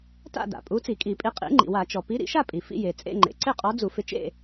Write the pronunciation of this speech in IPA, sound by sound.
ta̰˥˨da̰˩ pʼu˨˥t͡si˧˩˧kʼi˧˩˧pʼi˨˥ qʼḭ˨˥ ŋ͡ǃḭ˩wa˧˩˧t͡ʃɔ˩ pi˨˥ɾḭ˧˩˧ʃa˥˨pʼi˩ fḭ˥˨je˩t͡sʼḛ˥˨ ŋ͡ǃḛ˩ǀɪ˥˨qʼɔ˨˥ d͡zu˧˩˧fɪ˨˥t͡ʃḛ˥˨

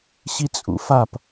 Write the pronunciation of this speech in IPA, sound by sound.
ɕit͡sʼṵfap

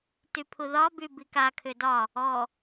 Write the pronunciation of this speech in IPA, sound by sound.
typʰuðɒby bikakʰʏ dɒ | ɔ

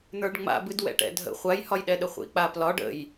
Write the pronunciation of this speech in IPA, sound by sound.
n̪ə˞ɖŋ͡ma̰bɨd wɛ̰ʈɛ̰dʱə̰ χʷajhɒjɗɛɗə χʷḭk͡paplɒɖ ə̰j

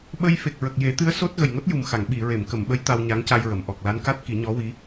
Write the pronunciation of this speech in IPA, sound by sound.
ɓə˧jfe˨˩k̚ ɹə˨˩k̚je˨˩˦t̪ɨ˧˥ə̯ so˦˥t̚ ɣə˨˩jŋo˦˥t̚ju˨˩mxa˨˩˨ŋ ɓi˨˩˨ ɹe˨˩˨mkə˨˩˨mɓə˧˥j t̪a˧wɲa˧˥ŋca˧jɹə˨˩˨m ʔɔ˨˩k̚la˧˥n ka˦˥t̚ ki˨˩˦ɲɔ˧˥wi˧˥

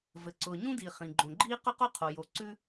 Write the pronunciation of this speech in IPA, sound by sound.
vɘ˩ǀʊː˩ɲũ˥di˩ χĩ˩ɡ͡ǃõ˩ɡ͡ǃiː˥ qʊ˥qo˥qʰo˩jo˩ ǀʉ˥

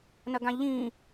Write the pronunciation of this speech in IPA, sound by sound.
nɐɡãʎĩ

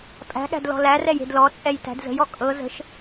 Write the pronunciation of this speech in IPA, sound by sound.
pʼæ̤ɠæ̤d lɔ̤lærɛj e̤dlɔt͡sʼɛj tæ̤dzə̤jɔ kʼɤ zə̤ʃ

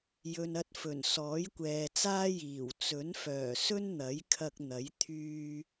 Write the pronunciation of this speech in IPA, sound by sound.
jɵ˨nɐ˧t̚fɵ˨˩n sɔː˨˥jkʷɛː˨t͡saː˥ jiː˨˩w t͡sɵ˨˥nfœː˨˩sɵ˥n n̪ɐ˨˥jkʰɐ˧k̚n̪ɐ˨˥j t̪ʰyː˧

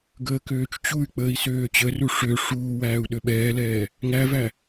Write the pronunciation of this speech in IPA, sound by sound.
ɡəːkøːt͡ʃt͡ɕuy̯k͡pəːi̯ søːt͡ɕəru ʂø ʂuːwæːu̯ ɗøɓɛːlɛː | ŋævæ

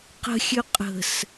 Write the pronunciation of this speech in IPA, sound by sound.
qə̤xʲø qʼə̤s

